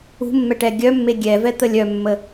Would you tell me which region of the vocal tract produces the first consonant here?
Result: lips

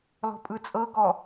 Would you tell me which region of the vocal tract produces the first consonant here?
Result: tongue tip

